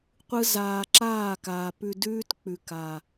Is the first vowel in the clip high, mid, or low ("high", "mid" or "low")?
high